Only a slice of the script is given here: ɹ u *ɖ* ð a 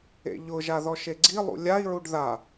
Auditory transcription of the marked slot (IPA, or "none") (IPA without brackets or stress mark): ɖ